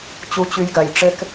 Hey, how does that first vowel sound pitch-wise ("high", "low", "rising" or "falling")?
high